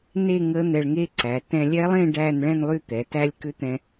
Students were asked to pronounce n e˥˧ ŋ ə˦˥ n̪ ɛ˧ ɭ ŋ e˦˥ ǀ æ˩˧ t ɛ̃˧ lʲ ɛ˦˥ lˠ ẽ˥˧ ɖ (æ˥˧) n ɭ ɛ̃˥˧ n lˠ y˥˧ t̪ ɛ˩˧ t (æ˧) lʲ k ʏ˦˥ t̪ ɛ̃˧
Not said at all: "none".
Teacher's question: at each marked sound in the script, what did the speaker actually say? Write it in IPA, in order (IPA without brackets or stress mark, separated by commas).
æ˥˧, æ˦˥